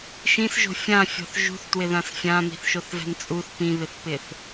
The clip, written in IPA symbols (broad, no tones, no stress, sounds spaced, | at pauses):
ʃ ĩ s ʒ o̤ fʲ ã fʲ ɔ̤ θ ʒ ṳ θ t w ɪ ð ã s fʲ ã m i̤ θ ʃ o θ v ɛ̤ n t͡sʼ u θ p ĩ β ɪ θ p ɪ θ